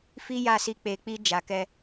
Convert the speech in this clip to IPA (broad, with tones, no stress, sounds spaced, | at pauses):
f i˦ j a˦˨ s i˧ k͡p e˨ k͡p i˧ d͡ʒ a˨ k ɛ˧